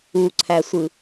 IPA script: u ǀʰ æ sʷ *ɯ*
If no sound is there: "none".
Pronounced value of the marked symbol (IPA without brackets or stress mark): ɯ